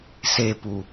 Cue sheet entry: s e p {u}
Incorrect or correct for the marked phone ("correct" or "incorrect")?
correct